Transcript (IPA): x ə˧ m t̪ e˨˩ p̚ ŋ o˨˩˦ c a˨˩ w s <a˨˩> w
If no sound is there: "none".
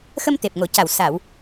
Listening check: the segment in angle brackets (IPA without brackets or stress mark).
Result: a˨˩˨